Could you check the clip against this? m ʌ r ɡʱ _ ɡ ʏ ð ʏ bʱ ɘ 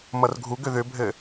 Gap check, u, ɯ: u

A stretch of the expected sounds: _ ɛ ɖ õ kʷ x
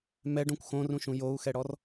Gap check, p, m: m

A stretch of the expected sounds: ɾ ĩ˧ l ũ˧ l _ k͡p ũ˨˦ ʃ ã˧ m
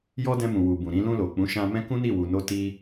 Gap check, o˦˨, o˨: o˨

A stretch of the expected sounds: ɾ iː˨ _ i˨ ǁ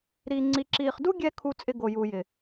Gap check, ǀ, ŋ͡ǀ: ŋ͡ǀ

